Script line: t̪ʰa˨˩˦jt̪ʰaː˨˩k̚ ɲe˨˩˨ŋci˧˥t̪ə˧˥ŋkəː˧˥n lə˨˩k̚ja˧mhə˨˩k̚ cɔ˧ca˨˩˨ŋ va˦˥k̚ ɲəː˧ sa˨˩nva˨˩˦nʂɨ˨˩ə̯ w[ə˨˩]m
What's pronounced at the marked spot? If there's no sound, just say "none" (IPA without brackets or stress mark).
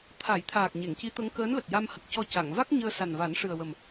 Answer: ə˨˩